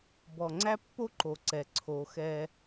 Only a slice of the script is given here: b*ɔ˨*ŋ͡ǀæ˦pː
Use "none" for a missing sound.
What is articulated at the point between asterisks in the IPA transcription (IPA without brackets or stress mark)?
ɔ˨